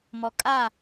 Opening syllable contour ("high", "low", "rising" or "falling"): low